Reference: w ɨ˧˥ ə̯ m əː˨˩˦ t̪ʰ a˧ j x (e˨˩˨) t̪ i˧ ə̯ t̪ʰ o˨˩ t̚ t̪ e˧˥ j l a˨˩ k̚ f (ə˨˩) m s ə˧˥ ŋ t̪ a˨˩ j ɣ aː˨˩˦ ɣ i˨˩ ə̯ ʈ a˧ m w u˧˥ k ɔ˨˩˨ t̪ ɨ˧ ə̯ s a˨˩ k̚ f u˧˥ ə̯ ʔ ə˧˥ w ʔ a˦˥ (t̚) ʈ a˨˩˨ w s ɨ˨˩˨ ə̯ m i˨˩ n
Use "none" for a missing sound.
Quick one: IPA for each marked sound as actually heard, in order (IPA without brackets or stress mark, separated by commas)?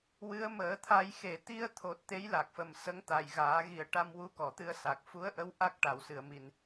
e˨˩˨, ə˨˩, k̚